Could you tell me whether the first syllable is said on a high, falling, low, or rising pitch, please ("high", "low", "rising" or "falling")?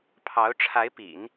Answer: rising